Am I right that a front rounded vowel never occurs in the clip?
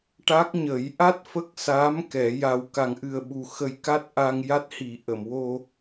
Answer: yes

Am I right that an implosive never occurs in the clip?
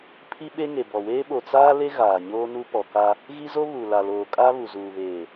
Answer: no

